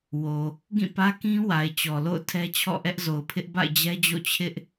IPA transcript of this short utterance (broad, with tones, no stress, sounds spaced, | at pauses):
w o˨ | ɡ ĩ˦˨ p ä˦ k ĩ˦ w a˨ ɪ̯ t͡ɕ ɔ˨ l o̰˦˨ ʊ̯ tʰ ɛ˦ t͡ɕʰ ɔ̰˦˨ ʔ ɛ˦ ʔ z o˨ ʊ̯ pʰ ɪ˦ ʔ b a̰˦˨ ɪ̯ d͡ʑ ɛ˦ d͡ʑ o̰˦˨ t͡ɕʰ ɪ˦ ʔ